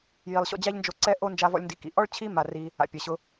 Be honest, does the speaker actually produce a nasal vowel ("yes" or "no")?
no